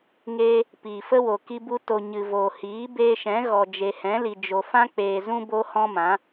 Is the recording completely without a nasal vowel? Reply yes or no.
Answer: no